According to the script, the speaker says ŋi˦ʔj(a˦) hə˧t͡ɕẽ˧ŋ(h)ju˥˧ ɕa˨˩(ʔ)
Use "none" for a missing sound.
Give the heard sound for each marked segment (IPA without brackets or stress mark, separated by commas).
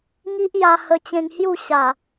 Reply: a˧, h, none